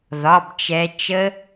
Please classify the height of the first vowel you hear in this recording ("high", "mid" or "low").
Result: low